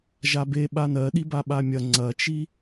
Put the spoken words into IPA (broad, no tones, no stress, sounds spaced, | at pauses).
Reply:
ʒ a b e ɓ a n ɜ ɗ i b a ɓ a mʲ ɐ ŋ͡ǀ ɐ t͡ʃ i